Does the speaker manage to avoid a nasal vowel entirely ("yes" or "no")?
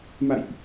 yes